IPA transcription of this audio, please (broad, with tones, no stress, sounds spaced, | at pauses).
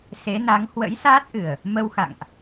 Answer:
s e˨˦ n a˨˦ ŋ h w ə̰˧˥ j s aː˦˥ t̚ ʔ ɨ˨˩ ə̯ | m ə˧ w x a̰˧˨ ŋ ʔ